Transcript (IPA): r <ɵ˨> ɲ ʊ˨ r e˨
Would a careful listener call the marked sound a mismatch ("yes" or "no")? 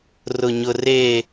yes